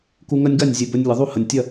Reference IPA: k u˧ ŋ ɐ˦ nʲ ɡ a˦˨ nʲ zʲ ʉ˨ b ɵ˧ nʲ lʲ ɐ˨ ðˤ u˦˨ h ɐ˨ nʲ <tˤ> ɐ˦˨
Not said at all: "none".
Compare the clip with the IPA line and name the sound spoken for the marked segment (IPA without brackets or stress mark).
tʲ